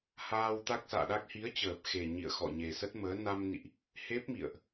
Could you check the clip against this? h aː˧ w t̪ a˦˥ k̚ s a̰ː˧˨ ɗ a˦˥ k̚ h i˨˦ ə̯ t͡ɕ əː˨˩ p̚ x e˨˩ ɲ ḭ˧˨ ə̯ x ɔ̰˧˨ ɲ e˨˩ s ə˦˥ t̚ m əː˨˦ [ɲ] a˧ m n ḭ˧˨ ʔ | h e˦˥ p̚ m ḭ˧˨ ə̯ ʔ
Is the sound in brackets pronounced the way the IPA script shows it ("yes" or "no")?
no